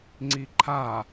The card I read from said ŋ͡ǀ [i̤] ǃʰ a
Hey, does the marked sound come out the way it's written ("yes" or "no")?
no